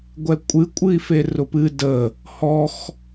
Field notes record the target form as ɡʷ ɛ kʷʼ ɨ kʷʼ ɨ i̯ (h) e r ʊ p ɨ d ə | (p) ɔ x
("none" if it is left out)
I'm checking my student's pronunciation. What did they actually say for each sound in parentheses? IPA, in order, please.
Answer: f, h

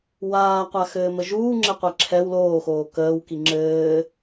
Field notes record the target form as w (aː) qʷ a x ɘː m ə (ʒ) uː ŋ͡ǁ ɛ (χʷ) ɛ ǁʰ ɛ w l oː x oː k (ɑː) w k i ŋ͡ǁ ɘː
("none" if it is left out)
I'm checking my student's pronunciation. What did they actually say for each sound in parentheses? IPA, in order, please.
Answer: aː, ʒ, qʷ, əː

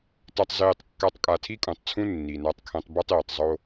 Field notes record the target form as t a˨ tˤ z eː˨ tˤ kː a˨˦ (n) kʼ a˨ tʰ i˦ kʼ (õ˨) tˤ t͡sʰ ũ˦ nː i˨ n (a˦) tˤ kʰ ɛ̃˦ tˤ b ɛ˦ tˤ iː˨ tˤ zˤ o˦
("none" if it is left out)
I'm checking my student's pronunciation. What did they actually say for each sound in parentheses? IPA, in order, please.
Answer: tˤ, ũ˨, a˦

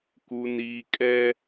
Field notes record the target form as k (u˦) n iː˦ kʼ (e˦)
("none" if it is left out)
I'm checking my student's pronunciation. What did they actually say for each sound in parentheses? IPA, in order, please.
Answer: u˦, ɛ˦

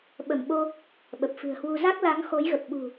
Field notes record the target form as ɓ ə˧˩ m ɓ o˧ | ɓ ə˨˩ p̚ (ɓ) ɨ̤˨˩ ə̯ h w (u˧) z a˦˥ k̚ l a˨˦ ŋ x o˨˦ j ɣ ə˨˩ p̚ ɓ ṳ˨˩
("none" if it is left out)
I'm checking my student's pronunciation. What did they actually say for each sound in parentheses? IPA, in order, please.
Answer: f, u˧

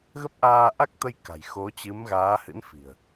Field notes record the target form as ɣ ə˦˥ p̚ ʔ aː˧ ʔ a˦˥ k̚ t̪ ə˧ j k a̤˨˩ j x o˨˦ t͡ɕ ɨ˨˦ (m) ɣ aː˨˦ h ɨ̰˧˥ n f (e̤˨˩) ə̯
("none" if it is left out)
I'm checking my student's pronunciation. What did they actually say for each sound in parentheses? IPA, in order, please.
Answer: m, i̤˨˩

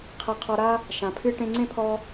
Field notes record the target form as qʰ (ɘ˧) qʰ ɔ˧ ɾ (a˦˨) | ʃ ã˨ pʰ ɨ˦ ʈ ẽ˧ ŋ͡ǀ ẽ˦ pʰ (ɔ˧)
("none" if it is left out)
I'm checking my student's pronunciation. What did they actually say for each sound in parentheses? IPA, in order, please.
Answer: ɘ˧, a˦, ɔ˧

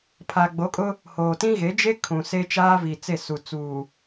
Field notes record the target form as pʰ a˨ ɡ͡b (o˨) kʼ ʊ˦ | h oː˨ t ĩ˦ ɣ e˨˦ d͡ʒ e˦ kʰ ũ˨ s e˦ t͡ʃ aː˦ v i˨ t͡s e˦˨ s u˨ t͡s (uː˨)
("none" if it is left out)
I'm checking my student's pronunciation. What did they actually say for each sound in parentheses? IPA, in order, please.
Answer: o˨˦, uː˨

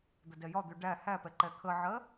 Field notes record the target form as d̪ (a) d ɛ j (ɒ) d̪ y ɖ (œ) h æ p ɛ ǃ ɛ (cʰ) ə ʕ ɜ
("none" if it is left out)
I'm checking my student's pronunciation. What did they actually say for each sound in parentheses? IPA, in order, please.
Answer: ə, ɒ, æ, kʰ

